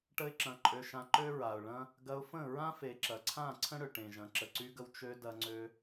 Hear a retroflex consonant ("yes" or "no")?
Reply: yes